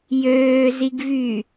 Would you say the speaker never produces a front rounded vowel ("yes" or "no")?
no